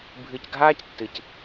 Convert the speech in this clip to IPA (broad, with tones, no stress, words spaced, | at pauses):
bʱɨ˨cɡʱaː˦ctːɨ˨c